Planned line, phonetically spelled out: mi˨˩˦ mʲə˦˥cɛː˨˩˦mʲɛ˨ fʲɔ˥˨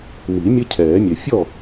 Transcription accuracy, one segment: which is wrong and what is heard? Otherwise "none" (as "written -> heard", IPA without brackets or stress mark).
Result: c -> cʰ